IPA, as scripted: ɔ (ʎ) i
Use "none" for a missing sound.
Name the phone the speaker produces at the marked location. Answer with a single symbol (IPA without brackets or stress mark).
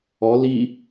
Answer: l